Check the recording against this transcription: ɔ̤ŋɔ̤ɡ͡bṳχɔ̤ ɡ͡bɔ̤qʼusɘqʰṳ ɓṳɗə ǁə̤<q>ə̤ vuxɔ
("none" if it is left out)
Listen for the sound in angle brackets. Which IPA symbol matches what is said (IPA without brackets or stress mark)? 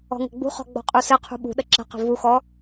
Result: q